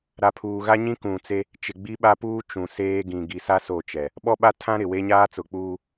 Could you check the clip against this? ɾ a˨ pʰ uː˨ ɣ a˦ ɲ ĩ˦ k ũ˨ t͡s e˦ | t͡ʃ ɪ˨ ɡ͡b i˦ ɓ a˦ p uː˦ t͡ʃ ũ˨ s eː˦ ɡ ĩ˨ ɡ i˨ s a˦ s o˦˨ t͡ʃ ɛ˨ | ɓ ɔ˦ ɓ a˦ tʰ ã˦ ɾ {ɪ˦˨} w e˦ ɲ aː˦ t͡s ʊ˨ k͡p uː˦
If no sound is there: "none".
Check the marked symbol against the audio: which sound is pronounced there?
ɪ˨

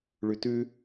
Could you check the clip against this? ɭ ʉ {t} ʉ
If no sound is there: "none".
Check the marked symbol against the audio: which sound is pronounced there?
t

